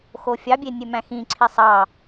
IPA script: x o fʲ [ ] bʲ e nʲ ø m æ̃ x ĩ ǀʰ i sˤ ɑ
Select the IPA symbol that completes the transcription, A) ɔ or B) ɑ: B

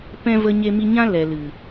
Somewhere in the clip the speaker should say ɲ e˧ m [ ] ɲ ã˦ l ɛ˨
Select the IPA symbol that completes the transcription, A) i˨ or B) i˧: B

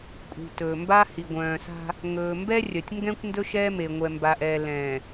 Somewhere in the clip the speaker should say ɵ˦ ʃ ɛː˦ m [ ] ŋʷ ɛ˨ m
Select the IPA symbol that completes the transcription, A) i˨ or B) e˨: B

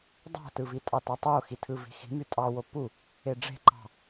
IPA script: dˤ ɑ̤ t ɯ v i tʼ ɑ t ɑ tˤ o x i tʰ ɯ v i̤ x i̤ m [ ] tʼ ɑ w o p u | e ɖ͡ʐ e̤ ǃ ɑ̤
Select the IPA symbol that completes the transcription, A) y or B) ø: A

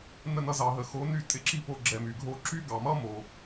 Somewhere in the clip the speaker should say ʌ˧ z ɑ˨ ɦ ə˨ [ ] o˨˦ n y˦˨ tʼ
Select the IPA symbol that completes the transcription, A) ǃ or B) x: B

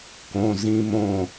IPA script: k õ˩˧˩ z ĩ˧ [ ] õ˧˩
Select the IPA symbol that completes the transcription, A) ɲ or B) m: B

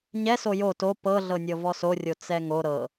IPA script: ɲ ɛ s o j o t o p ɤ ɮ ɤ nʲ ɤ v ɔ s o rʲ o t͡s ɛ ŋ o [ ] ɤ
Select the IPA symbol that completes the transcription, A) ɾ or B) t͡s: A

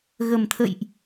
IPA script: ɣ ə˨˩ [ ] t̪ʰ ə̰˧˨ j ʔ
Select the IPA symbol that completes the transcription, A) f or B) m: B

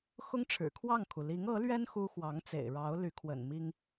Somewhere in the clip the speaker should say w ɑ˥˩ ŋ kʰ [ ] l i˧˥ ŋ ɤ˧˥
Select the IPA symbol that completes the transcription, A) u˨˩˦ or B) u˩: B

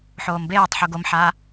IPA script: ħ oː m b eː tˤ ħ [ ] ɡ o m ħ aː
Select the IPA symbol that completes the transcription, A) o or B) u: B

